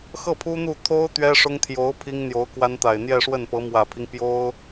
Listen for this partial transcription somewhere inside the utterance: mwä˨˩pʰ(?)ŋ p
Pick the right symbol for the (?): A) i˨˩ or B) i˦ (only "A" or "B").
B